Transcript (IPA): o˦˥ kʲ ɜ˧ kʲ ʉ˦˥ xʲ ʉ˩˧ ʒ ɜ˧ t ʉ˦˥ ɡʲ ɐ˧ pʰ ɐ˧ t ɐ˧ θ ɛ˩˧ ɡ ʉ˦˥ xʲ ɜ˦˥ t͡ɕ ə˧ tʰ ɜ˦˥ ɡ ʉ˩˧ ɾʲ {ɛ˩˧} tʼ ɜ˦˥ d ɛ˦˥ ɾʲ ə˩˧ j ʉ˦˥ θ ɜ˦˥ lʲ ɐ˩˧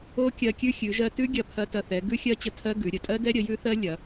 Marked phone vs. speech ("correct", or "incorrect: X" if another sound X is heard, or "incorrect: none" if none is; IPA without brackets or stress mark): incorrect: ə˩˧